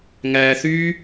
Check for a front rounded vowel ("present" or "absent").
present